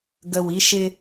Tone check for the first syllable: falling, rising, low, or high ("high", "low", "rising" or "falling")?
low